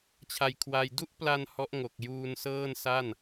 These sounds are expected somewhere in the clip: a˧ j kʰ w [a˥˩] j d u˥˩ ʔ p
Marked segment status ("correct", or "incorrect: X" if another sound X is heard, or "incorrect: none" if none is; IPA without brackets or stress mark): incorrect: a˧